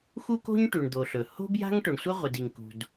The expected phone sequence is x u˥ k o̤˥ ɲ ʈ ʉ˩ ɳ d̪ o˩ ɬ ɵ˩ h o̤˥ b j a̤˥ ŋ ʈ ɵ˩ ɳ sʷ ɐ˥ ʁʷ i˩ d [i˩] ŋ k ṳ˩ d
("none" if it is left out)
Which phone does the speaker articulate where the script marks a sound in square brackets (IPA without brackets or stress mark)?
i˩